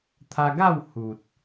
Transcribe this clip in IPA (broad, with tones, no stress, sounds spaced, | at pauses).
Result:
t̪ʰ a˧ ɡ a˥˧ w h u˨ t̚